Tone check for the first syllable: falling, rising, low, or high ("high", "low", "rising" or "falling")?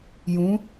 rising